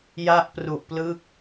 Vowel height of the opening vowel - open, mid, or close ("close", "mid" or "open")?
open